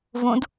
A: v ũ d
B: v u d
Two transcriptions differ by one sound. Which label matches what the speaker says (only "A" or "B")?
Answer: A